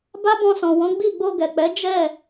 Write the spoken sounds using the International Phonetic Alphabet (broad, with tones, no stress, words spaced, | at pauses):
ba˦bɔ̃˧sɔ̃˨wɔ̃˨˦ ɡ͡bi˦˨ ɡ͡bo˧ɡɛ˨k͡pɛ˨˦ d͡ʒɛ˦˨